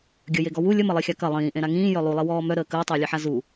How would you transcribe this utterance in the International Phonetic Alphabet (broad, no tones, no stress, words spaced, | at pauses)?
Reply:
ɡʲəjeɡɔ wu lʲəmɐlˠixʲa kɐ lˠĩːʔẽɾa ŋĩːjœ lˠulˠiwɔː mœɾəː kəːtˤəːlʲeħa zu